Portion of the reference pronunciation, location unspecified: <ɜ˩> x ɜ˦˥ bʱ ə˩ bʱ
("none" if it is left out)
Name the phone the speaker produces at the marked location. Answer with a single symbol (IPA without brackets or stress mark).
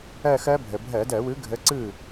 ɜ˥˧